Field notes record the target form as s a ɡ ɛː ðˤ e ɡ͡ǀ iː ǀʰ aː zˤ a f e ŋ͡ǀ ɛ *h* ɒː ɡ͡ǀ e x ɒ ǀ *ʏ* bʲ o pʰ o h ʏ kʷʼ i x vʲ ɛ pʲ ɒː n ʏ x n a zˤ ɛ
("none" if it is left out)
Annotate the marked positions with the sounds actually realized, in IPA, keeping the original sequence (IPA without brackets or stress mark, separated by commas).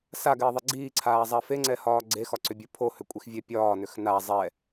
h, ʏ